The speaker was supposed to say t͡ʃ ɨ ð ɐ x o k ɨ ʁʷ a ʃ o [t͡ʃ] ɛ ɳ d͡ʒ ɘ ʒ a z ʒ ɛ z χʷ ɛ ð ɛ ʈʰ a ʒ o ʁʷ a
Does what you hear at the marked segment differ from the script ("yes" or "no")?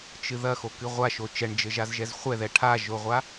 no